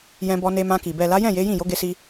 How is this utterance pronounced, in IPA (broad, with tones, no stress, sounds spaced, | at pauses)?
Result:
j ɛ̃˧ b ɔ˧ n e˧ m ã˧ k i˨ b ɛ˨ l a˨˦ j ɛ̃˦˨ j e˨˦ j ĩ˦˨ j o˨˦ ɡ e˧ s i˧